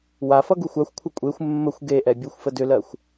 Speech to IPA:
w a f ʌ ɡ u xʷ a xʷ kʷʰ ʌ kʷʼ e xʷ mː ə xʷ ɡ e ʔ ɛ bʲ o xʷ f ə d ʏ l ɜ xʷ

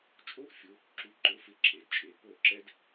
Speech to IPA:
t͡ʃʼ o˥ ʔ fʲ ʊ˨˥ | ǁ u˨˥ ǃ ʊ˨˥ f ɪ˨˥ ǁʰ e˩˧˩ d t͡ʃʼ e˨˥ p o˥˩ ǁ ɛ˥ d

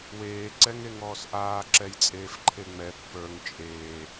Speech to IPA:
w eː ǀ ɛ ŋ e ŋ ɔː s ʔ aː ǁ ɛ j t͡sʼ eː f ǃʰ e ŋ͡m ɛ pː ə˞ ŋ t͡ʃʼ eː

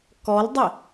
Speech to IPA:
k ɔ l dˤ ɛ

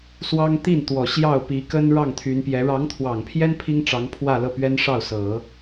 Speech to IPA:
s w ɑ˥ ŋ t̪ i˥˩ n t̪ w ɔ˨˩ ɕ j ɑ˥˩ ʊ̯ p i˧˥ k ə˥ n ɻ ɑ˥˩ ŋ t̪ʰ y˧˥ n p j ɛ˧˥ ɻ ɑ˧˥ ŋ t̪ʰ w ɑ˨˩ ŋ pʰ j ɛ˥ n pʰ i˥ ŋ ʈ͡ʂ ɑ˧˥ ŋ pʰ w ä˥˧ l ɤ˥˩ p ɥ ɛ˥ n ʂ ɑ˥˩ ʊ̯ s ɤ˨˩˦

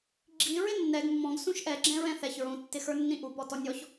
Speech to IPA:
ɡ͡ǁ i ɹ ɪ nː ɛ ɡ mː ɔ̃ ɡ s ũ ʃ ʔ ɛ ɡ͡ǁ ɛ̃ ɹ ɛ̃ θ ɛ ç ɹ ũ tː ɪ x ə˞ nː ĩ ʔ u p ɔ t ɔ nʲ ɔ ç

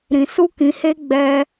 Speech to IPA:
ɾ ĩ˧ s u˦ k ĩ˧ h e˦ ɡ͡b ɛ˧

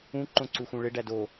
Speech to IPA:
ũ ǃ õ ǀ u x ũ ɭ e ɖ æ d o

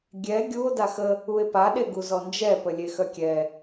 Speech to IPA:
ɡʲ ɛ ɡʲ u o̯ d a x ə | u e̯ p a ɗ e ɡ u z ɔ n d͡ʒ ɛ p ə lʲ e x œ kʲ ɛ

